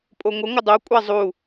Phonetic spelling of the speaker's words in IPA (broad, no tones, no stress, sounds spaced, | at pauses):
pʼ o ŋʷ ə ŋʷ ə dˤ o kʷʼ a zˤ u